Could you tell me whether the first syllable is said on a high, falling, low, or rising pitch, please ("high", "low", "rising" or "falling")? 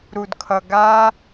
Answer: low